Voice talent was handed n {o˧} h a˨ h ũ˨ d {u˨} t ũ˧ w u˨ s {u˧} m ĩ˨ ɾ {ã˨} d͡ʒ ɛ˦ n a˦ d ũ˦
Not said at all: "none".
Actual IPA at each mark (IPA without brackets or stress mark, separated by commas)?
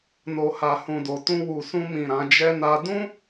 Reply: o˨, o˨, ũ˧, ã˨˦